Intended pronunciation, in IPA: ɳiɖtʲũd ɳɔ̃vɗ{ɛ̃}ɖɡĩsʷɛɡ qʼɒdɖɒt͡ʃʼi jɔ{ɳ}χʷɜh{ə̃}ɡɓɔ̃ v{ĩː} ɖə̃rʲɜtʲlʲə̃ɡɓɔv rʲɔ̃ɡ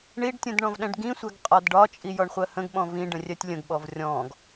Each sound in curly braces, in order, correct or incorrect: correct, correct, correct, incorrect

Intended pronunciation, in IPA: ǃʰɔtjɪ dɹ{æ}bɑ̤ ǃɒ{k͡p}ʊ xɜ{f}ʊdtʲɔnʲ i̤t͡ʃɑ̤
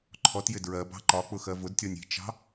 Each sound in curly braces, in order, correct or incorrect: incorrect, correct, incorrect

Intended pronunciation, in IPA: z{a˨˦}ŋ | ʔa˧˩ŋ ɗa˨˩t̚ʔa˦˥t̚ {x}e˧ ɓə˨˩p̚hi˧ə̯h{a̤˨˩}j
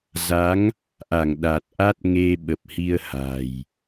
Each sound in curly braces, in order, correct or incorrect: correct, incorrect, correct

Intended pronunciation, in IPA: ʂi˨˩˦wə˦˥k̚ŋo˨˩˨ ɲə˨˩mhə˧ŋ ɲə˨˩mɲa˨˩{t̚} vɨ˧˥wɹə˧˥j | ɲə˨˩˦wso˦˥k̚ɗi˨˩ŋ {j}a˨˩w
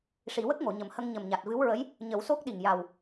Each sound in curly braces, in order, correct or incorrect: correct, correct

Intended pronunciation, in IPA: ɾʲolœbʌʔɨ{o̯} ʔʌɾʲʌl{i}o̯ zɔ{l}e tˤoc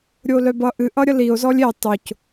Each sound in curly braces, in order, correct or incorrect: incorrect, correct, incorrect

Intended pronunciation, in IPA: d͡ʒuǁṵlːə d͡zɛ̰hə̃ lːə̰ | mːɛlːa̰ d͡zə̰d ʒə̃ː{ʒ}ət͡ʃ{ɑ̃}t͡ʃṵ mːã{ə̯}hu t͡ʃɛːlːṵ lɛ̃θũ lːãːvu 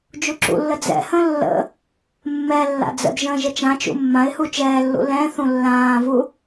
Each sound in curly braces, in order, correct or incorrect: correct, incorrect, incorrect

